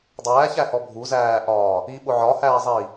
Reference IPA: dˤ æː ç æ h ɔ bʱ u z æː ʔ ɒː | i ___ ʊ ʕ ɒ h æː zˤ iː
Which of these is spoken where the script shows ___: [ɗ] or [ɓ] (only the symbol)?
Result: ɓ